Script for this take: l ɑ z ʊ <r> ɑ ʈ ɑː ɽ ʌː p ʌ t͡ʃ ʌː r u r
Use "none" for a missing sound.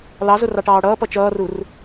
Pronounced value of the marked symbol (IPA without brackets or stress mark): r